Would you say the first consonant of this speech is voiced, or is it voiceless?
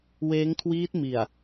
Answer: voiced